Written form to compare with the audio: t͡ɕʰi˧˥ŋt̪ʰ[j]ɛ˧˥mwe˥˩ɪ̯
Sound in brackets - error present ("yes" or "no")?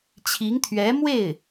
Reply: yes